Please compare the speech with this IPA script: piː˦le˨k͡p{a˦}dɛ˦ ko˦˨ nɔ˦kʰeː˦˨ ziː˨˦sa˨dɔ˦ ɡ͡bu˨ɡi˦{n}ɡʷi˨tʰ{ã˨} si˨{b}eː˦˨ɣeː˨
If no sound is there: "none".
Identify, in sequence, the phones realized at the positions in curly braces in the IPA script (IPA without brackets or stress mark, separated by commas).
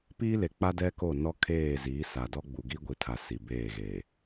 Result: a˦, none, a˨, b